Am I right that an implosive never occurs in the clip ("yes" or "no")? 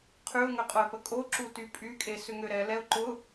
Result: yes